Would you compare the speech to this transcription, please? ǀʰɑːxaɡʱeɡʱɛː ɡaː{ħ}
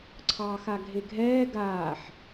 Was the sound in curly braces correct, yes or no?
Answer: yes